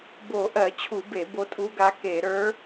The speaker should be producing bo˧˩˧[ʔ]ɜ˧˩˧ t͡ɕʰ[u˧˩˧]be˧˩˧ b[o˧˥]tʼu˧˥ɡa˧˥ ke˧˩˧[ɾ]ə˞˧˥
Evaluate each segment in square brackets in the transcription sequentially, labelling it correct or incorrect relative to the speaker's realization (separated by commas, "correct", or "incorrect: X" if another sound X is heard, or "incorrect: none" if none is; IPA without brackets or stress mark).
correct, correct, correct, correct